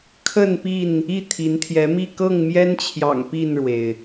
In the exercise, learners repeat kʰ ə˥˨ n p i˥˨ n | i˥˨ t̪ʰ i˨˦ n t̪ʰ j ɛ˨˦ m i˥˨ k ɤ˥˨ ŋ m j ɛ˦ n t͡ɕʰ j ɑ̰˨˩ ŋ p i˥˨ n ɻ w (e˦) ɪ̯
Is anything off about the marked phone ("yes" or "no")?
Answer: yes